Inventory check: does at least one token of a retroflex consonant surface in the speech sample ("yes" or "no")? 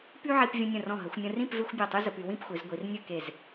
no